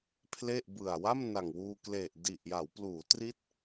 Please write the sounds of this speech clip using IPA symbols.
pʰ l e˥˩ ʔ b ɯ˨˩ a̯ w a˥˩ m n a˨˩ ŋ w uː˧ k l e˨˩ ʔ d i˨˩ ʔ j a˩˦ w p l uː˩˦ t r i˦˥ t̚

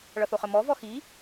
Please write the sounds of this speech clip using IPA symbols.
ɭ ʌ θ o χ ə m ɔ v ɔ x i

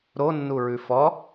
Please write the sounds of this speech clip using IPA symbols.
ɾ o nː u ɹ ʉ f ɔ

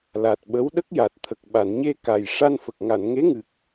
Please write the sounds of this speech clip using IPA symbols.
l a˨˩ t̚ ɓ ə˧˥ w ɗ ə˦˥ k̚ j a˨˩ t̚ t̪ʰ ə˨˩ k̚ ɓ a˨˩˨ n ɲ e˧ k a˨˩ j ʂ a˧ n f ə˨˩ k̚ ŋ a˨˩˨ n ŋ e˧˥ ŋ ɨ˨˩ k̚

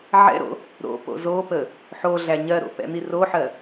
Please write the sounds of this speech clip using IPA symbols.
ʕ ɛ̰ ɾ o̰ | ɾ o̰ p o̰ z o p ə | ħ o ɮ æ ɲ ɜ ɾ o̰ p ɛ̰ n̪ i r o ħ ɜ

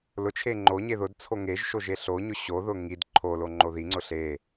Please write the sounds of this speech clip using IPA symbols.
l ʊ t͡ʃʰ e ŋ͡ǃ o ɲ e ð ʊ d t͡sʰ o ŋ e ʒ ʃ o ʒ e ɬ o ɲ ʊ ɕ o ð ʊ ŋ i d ǃʰ o l o ŋ͡ǃ o ð i ŋ͡ǀ ʊ ɬ e

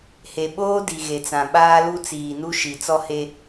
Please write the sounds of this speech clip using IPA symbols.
h e˨ ɓ oː˦ d i˨ ɣ e˨ t͡s ã˨ ɓ aː˦ l u˦ t͡s iː˨ n u˦ ʃ i˨ t͡s ɔ˦ h e˦

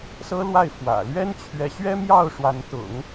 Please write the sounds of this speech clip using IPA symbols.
s ɤ˥ l w a˥˩ ɪ̯ f w ä̰˨˩ l ɥ ɛ˥ n t͡ɕʰ ɥ ɛ˧˥ ɕ ɥ ɛ˥ m j ɑ˥˩ ʊ̯ ʂ w a˧˥ n t̪ ʊ̰˨˩˦ ŋ

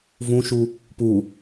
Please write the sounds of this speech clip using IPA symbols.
v ũ ʃ u | p u

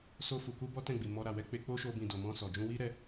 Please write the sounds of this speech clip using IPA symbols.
s o˧ f u˨ k u˧ b ɔ˦ t ɛ̃˦˨ ɡ͡b i˨ m ɔ˧ ɾ a˨ w ɛ˧ k͡p e˧ k͡p o˦ ʃ o˧ b ĩ˨ d o˨ m ɔ̃˧ s ɔ˨ d͡ʒ ũ˧ w i˦ ɾ ɛ˧

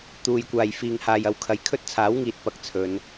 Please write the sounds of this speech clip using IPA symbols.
t̪ uː˨ j kʷ aː˨ j f iː˨ ŋ h aː˨ j ɐ˨˧ w kʰ ɐ˨˧ j kʰ ɵ˥ t̚ t͡sʰ aː˨˥ w ŋ iː˨ t̚ p ɐ˧ k̚ t͡sʰ ɵ˨˧ n

